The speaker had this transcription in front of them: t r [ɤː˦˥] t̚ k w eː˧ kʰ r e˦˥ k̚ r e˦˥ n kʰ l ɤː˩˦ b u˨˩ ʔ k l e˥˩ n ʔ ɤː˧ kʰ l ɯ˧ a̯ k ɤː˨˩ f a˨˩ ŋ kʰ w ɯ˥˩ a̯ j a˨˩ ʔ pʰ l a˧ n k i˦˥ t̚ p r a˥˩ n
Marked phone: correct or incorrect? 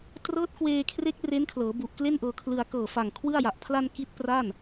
correct